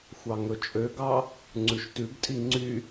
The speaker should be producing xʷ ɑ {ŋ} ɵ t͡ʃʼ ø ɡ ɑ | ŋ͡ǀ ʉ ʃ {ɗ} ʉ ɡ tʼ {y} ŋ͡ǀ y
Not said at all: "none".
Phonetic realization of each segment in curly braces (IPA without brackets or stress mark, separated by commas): ŋ, t, i